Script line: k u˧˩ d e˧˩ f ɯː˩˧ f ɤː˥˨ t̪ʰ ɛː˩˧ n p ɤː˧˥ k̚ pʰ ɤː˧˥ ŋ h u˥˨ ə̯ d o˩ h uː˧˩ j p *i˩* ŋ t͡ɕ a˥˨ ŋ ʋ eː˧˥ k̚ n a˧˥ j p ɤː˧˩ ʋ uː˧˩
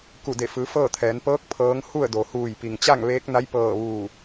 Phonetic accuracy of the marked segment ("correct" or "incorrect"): correct